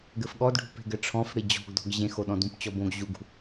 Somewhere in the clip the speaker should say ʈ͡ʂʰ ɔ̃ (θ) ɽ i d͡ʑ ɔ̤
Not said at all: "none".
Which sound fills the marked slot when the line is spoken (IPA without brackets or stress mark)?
f